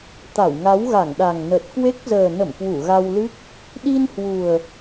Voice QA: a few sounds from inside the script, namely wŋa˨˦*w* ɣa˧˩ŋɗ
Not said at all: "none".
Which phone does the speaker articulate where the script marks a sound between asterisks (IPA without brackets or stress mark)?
w